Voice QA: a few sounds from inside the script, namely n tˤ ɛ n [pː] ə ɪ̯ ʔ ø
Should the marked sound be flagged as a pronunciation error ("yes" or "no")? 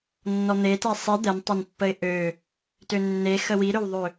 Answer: no